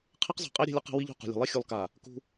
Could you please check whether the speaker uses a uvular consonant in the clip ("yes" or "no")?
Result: yes